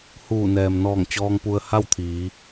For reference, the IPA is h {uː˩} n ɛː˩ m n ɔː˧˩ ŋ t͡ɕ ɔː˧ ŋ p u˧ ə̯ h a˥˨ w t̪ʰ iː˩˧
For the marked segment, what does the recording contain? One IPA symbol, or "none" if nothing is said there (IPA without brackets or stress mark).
uː˧˩